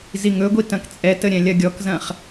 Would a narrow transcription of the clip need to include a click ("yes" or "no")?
no